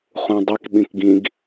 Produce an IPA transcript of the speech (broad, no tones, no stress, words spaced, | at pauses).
χũdˤik ɓĩkɡĩɡ